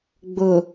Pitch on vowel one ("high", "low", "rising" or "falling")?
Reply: low